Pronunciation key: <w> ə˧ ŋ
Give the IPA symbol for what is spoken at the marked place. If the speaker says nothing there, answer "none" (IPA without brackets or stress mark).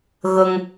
ɣ